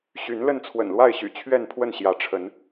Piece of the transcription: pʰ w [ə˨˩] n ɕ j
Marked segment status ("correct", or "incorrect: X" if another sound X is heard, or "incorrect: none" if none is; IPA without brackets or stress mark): incorrect: ə˥˨